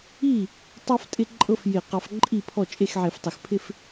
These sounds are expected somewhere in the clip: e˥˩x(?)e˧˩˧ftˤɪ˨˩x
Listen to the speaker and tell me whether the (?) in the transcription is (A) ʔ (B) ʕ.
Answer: B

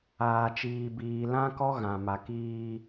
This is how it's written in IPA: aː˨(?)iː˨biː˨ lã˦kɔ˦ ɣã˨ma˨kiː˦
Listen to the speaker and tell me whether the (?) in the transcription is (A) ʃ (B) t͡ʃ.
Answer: B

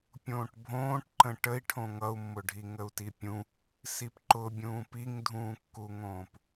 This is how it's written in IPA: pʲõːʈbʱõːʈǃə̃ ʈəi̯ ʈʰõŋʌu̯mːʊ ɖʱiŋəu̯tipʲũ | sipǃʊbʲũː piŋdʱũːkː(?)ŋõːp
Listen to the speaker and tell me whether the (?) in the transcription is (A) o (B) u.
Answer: B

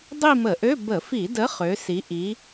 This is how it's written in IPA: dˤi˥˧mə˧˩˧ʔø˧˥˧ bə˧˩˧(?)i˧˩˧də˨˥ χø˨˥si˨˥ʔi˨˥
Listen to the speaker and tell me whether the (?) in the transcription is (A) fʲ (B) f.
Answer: B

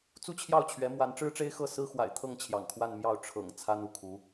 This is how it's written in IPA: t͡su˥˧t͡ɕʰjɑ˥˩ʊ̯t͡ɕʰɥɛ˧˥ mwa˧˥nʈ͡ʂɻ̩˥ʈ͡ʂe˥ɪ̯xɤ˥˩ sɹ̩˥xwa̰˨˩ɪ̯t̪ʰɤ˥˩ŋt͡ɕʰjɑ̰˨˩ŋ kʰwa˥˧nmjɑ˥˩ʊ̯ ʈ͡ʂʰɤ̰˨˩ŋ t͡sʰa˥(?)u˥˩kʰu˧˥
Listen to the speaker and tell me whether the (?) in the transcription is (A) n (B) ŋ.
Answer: A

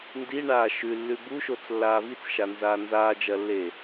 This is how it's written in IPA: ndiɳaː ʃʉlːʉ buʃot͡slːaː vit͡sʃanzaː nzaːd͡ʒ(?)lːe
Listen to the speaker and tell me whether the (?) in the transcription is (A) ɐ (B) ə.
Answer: A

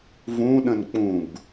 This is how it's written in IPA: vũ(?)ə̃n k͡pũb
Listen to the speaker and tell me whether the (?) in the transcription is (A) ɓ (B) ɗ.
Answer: B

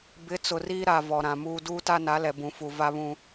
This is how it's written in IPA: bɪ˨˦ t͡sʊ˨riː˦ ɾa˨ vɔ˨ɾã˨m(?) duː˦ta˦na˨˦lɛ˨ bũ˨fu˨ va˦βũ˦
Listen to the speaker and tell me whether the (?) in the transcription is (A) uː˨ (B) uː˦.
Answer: B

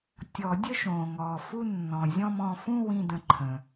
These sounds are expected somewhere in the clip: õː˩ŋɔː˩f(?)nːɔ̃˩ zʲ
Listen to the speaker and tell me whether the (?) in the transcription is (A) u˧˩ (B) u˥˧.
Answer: B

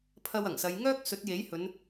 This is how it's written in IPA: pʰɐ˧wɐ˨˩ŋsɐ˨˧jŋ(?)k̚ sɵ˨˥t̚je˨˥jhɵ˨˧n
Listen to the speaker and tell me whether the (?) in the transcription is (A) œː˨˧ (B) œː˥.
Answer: B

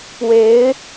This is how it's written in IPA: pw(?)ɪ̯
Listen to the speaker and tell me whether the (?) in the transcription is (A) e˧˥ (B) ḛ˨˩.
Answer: A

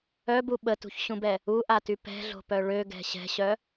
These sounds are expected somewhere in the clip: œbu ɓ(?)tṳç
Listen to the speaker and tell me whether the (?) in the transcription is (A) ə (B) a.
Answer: A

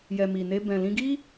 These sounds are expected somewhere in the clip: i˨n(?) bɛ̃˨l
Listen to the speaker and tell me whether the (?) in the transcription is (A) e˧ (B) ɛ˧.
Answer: A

